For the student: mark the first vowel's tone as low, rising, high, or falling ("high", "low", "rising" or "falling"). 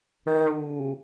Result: low